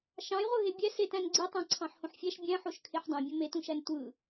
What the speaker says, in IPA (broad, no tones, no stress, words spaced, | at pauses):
ʃɑ̃jʁʷɯ ɦebʲæ setæ̃n ɡ͡ǀitˤæ̃ ǀʰɑ̃ħhõħfʲæʃ bʲæ̃ħoʃ kʰeħdˤæ̃bʲõ metũʃæn tʷɯ